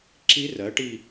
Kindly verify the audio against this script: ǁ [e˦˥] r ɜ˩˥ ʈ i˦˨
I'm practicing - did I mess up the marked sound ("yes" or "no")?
yes